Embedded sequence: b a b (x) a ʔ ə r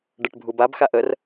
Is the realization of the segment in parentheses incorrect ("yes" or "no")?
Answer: no